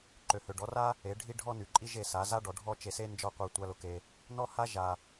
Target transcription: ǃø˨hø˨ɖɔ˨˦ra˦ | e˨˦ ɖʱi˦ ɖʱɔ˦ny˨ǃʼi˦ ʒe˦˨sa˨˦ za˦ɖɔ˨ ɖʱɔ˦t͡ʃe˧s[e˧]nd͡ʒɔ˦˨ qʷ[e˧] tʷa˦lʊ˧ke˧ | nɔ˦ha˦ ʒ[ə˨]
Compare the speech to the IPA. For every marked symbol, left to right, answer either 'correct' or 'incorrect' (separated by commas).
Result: incorrect, correct, incorrect